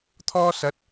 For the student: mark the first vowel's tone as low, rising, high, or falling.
high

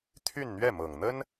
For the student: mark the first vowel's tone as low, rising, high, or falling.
falling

